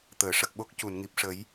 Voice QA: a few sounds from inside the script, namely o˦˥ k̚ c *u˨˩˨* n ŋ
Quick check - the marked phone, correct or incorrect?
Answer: correct